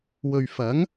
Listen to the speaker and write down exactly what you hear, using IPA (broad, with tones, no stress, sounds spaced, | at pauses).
w ɵ˨ ɥ f ɐ˨˥ ŋ